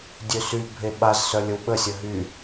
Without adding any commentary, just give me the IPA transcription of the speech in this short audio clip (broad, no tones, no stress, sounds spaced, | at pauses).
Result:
dʲ ø s y bʱ e ɓ a z s œ lʲ ə w ɓ ə sʲ ə ɦ y